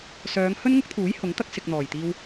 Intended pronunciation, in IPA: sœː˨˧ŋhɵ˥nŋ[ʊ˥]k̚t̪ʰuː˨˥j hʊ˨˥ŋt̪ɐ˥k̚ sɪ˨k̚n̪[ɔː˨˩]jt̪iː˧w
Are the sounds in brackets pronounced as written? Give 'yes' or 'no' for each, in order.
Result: yes, yes

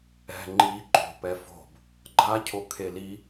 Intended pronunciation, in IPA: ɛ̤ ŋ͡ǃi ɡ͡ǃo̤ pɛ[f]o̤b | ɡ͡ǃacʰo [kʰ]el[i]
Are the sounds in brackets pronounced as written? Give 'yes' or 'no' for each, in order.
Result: yes, yes, yes

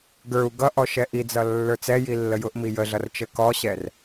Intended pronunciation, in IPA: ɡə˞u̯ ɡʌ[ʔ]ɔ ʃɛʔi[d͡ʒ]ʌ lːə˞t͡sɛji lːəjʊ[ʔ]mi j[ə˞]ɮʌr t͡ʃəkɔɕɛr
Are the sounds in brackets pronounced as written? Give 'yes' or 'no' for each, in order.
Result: yes, no, yes, no

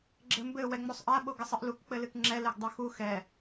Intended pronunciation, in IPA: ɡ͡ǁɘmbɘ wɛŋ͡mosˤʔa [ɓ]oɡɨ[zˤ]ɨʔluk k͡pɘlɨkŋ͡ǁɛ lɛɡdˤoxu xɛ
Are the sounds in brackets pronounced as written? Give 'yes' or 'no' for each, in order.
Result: yes, no

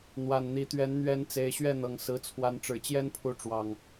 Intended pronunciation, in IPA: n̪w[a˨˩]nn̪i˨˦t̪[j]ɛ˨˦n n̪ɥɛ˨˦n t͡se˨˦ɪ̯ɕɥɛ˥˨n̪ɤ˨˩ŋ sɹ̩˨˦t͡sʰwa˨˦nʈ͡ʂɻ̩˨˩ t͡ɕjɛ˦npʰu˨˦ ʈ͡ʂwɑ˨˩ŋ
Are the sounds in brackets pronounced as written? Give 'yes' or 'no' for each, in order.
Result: yes, no

